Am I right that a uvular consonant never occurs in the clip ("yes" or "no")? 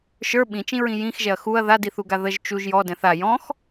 yes